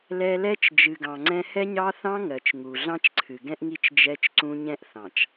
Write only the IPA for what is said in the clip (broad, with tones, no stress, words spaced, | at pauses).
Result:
lɛ˦ lɛ˦t͡ʃ d͡ʒɨ˨ɡɑ̃˨ŋ͡ǀɛ̃˦ hɛ˦ɲɑ˦θɑ̃˦ ŋɜ˨t͡ʃŋu˨ ɮɑ̃˦t͡ʃǀʰɨ˨ɡɛ̃˦ʔŋi˦t͡ʃ d͡ʒɛ˦t͡ʃǀũ˦ ɲɛ̃˦ʔ θɑ̃˨t͡ʃ